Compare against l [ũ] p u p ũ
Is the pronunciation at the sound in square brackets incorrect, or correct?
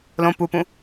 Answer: incorrect